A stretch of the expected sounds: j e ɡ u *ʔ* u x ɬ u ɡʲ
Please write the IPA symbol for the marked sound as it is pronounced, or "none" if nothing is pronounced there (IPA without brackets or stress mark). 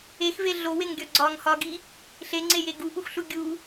ʔ